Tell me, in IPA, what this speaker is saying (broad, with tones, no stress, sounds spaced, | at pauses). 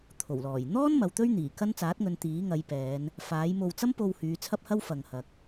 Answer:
t̪ʰ o˨˩ w l ɔː˨˩ j n̪ ɔː˥ n m ɐ˨˧ w t̪ ɵ˥ ɥ n̪ iː˨˩ k ɐ˥ n t͡s aː˨˥ t̚ ŋ ɵ˨˧ n t̪ iː˨˥ ŋ ɐ˨˧ j p ɛː˨˧ n | f aː˨˥ j m o˧ w t͡s ɐ˥ m p o˧ w h yː˨˧ t͡sʰ ɐ˥ p̚ h ɐ˥ w f ɐ˨ ŋ h ɐ˨ k̚